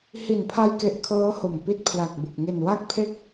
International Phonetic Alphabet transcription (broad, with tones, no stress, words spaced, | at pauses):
hi˨˩npʰa˧jke˨˩ʔ kʰɤː˦˥ ho˨˩mpi˦˥t̚pʰla˨˩k̚bu˨˩k̚ ŋe˨˩nwa˥˩k̚pʰe˥˩k̚